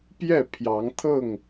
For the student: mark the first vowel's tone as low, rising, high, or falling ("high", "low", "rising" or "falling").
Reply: falling